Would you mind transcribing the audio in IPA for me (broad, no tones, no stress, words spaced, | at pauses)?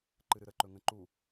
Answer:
ǃɨɾɨɾəǃɵ ŋə̃ǃu